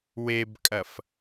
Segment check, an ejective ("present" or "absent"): present